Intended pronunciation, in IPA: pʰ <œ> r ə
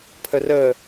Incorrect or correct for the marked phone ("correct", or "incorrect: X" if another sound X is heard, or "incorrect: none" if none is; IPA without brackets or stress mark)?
incorrect: ə